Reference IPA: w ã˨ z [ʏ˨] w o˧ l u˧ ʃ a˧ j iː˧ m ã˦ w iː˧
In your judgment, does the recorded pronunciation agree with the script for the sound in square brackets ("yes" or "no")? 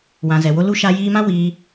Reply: no